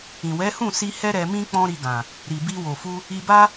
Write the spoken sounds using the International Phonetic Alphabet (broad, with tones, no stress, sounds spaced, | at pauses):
ĩ˨ w ɛ˨˦ h ũ˦˨ s i˧ h ɛ˦ ɾ ɛ˧ m ĩ˦ k͡p ɔ̃˦ ɾ i˧ ɡ ã˨ | ɾ i˨ b i˧ w o˨ f u˧ | i˧ b a˦